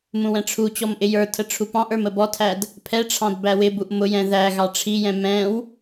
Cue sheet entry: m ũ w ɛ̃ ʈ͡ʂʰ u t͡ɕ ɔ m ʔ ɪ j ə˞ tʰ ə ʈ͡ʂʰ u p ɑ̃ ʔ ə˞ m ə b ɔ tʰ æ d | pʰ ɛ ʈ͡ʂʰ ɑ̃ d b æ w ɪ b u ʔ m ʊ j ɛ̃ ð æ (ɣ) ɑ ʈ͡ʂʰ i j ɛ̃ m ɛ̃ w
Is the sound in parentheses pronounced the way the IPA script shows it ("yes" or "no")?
yes